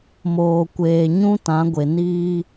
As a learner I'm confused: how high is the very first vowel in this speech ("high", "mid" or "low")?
mid